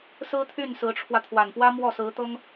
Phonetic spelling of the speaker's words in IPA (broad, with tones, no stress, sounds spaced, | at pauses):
s ɹ̩˥ t̪ʰ y˥˩ n s ɹ̩˧˥ ʈ͡ʂʰ w ä˧ t̪ʰ w a˨˩ n p w ä˥ m w ɔ˥˩ s ɹ̩˧˥ t̪ ɤ˥ ŋ